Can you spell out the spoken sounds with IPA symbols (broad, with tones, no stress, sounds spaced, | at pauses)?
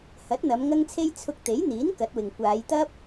h ɐ˨˥ t̚ n̪ ɐ˨˧ m ŋ ɐ˧ ŋ t͡sʰ e˧ j t͡sʰ ʊ˧ k̚ t̪ e˨˥ j n̪ iː˨˥ n k ɐ˨˥ t̚ w ɪ˨ ŋ kʷ aː˨˧ j t̪ ɐ˥ p̚